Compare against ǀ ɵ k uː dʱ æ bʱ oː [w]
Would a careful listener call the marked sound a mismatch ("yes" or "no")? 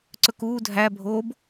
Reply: yes